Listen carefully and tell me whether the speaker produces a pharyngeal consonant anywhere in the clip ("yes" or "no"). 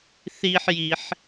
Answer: yes